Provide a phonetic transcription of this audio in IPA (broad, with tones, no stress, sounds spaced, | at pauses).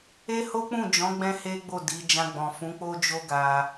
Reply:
e˦ h o˦ k͡p ũ˦˨ d͡ʒ ɔ̃˨˦ ɡ͡b ɛ̃˦ h e˦ ɡ͡b o˦˨ d i˨˦ d͡ʒ ã˧ ɡ͡b ɔ̃˨ f ũ˨˦ k͡p o˦ d͡ʒ o˦ ɡ a˧